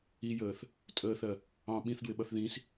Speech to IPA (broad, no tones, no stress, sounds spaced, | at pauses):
i j əː θ | tʼ əː θ ɜ | ɑ̃ ɓ ĩ θ d w ɪ ɓ ʌ θ ð ĩ s